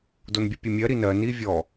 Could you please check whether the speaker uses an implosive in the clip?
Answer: no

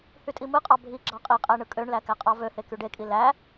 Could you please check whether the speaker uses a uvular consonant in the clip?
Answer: yes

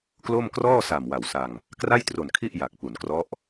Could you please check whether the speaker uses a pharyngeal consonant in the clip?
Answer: no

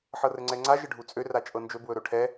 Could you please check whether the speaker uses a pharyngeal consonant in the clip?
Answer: yes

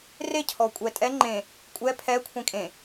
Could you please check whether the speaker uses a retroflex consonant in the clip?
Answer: no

